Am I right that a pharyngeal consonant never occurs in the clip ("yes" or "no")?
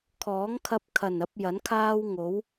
yes